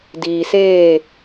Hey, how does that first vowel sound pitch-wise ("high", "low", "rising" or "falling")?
low